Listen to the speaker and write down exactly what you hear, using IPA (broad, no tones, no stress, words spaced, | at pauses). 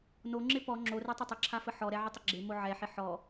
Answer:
noŋ͡ǁɪ pɔ ŋ͡ǁorɛtˤə tˤəǁʰafə ħɔɾɛʕɪtˤɪ ɡ͡ǁɪmo ʕɛħɪ ħɔ